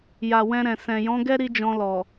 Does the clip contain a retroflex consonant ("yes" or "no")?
no